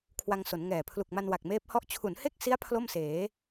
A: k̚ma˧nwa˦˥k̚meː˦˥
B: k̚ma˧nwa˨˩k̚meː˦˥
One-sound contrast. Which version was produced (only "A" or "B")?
B